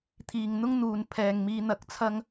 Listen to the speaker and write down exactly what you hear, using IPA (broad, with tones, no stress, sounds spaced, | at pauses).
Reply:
t̪ʰ iː˨ ŋ n̪ ʊ˥ ŋ n̪ uː˨ n pʰ ɛː˨ ŋ m iː˧ n̪ ɐ˨˥ k̚ t͡sʰ ɐ˥ ŋ